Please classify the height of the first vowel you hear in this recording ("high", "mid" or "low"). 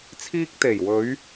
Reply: high